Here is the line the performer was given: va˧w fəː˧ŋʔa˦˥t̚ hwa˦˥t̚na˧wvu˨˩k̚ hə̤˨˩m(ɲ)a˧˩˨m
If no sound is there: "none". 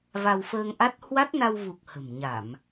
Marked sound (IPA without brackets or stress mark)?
ɲ